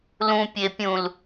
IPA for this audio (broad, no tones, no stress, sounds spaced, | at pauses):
l ũ pʲ e pʲ ũ l